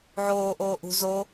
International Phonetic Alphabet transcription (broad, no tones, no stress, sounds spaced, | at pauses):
ʕ oː ʔ oː ʔ ṳ z o